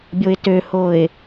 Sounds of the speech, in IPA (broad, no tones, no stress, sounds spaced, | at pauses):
bʲ o ɪ̯ t ø h o ɪ̯